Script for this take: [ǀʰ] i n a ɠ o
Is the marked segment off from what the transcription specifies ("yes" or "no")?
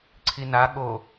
no